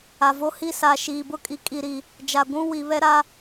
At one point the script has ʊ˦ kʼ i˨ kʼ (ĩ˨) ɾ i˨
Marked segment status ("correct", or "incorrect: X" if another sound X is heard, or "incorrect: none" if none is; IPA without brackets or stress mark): incorrect: i˨